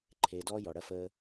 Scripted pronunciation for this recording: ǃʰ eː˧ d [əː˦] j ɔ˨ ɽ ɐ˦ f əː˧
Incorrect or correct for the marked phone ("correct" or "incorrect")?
incorrect